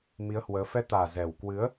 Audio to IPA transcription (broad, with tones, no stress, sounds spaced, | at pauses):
m i˨˦ ə̯ h w əː˨˦ f ɛ˧ t̪ aː˨˩ z ɛ˨˩ w k w ɨ˨˦ ə̯